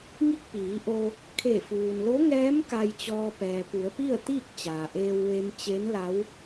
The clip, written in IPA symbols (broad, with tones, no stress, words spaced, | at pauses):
ŋi˥˨k̚piː˩˧ʔo˧ | kʰe˧˩fuː˩nlo˧˥ŋɛː˧˥m ka˧jt͡ɕɔː˧ pɛː˩pu˩˧ə̯pi˥˨ə̯t̪iː˥˨k̚ t͡ɕaː˩ʔeː˧w ʋe˧mt͡ɕe˧˥nla˧˥w